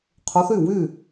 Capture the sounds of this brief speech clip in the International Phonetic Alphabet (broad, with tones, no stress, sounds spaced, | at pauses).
qʰ ʊ˨˦ θ y˥˩ w y˥˩